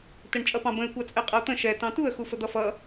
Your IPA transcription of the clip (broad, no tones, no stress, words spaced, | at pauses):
tɛɳt͡ʃʼʌpɑ̃bə̃ɪ̯ kʷɑt͡sʼɛqʼʌʊ̯t̪ə̃ ʃɛ tɑ̃tuə̯ xufəd̪ʌfʌ